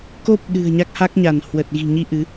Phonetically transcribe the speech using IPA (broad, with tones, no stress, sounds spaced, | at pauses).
k o˦˥ p̚ ɗ ɨ̤˨˩ ə̯ ɲ a˦˥ k̚ h a˦˥ k̚ ɲ a˧˩ n h w ə˨˩ t̚ ɣ i̤˨˩ ɲ i˧ ʔ ɨ˨˦